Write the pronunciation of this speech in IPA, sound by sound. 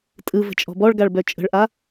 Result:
tʼ ɯ v ə̤ t͡ʃʼ ɔ̤ b ɔ ɭ ɡ a ɭ b œ t͡ʃʼ ə̤ ɭ ʔ a

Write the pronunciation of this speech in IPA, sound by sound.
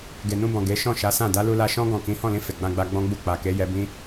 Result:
ɡ e˨ n ũ˧ b ɔ̃˨ ɡ e˨˦ ʃ ɔ̃˦˨ ʃ a˨˦ s ã˦˨ d a˨˦ l u˧ l a˧ ʃ ɔ̃˦ ɡ ɔ̃˦˨ k ĩ˨˦ h ɔ̃˦˨ l ĩ˧ f e˨ ɡ͡b ã˧ ɡ͡b a˧ ɡ͡b ɔ̃˦ ɡ͡b u˦˨ k͡p a˨ k e˨˦ j ɛ˧ b ĩ˦

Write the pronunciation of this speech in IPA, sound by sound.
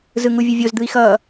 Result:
z ɯ ŋ u vʲ ɯ vʲ o z d̪ ɯ i̯ x ʌː

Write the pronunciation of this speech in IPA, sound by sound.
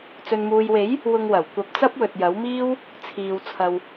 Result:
t͡s ɵ˨ n m uː˨ j w e˨˥ j | w ʊ˧ ŋ w ɐ˨˩ w kʷ ɐ˧ p̚ t͡s ɐ˥ p̚ w ɵ˨ t̚ j ɐ˨˥ w m iː˥ w | t͡sʰ iː˨ w t͡sʰ ɐ˨ w

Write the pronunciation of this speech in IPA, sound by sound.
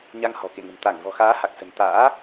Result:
ɲ a˧ ŋ h ɔ̤˨˩ k ḛ˧˨ ŋ ə̤˨˩ m t̪ a˧˩ ŋ v ɔ̤˨˩ x aː˨˦ h a˨˩ k̚ s ə̤˨˩ n t̪ a̰ː˧˥

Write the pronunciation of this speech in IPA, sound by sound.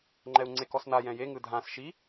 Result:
ŋ͡ǃ ɛ u̯ ŋ͡ǀ e k ɔ s n a j ɛ̃ j e ŋ ɯ dʱ ã s ʃ i

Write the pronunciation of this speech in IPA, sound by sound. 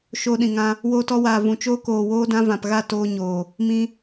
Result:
ʃ oː˧ ɗ ĩ˨ ŋ ã˧ | w oː˧ t ɔ˧ w aː˨ v ũ˨ t͡ʃ oː˧ k oː˨ w oː˧ d ã˧ v ã˨ p ɣ a˦˨ t oː˧ ɲ oː˨ | m ĩ˧

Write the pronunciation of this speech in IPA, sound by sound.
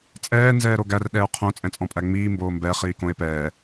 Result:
t͡sʼ ɛː n z ɛː ɾ o ɡ æ r ɗ ɛː o̯ qʰ õ t͡sʼ ɛ̃ t͡sʼ ɔ̃ pʼ æ ŋ͡m iː m b oː m b ɛ χ iː k õ e̯ p ɛː

